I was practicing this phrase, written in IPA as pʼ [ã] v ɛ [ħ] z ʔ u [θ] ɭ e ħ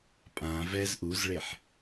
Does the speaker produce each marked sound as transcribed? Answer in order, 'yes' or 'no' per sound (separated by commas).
yes, no, no